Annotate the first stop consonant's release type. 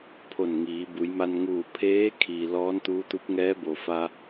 aspirated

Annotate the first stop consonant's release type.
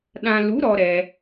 implosive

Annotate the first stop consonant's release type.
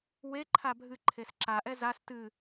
click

